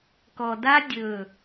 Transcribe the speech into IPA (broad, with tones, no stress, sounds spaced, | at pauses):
k ɔ˨ d a˦ dʲ ɵ˦˨